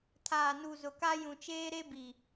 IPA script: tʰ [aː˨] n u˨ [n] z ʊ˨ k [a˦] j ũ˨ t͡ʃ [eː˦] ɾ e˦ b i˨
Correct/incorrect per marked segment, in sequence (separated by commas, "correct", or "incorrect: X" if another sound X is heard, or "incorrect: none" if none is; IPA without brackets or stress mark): correct, incorrect: none, correct, correct